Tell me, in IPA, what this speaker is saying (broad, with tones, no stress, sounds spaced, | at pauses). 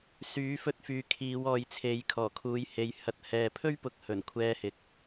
s yː˨˥ f ɵ˧ t̚ f yː˨ kʰ iː˨˧ w ɔː˨ j t͡sʰ e˨˧ j kʰ ɔː˨˩ kʰ uː˨˧ j h e˨ j h ɐ˨˥ t̚ h ɛː˨ pʰ ɵ˥ ɥ p ʊ˨ k̚ h ɵ˨˩ n kʷʰ ɛː˧ h ɪ˨ k̚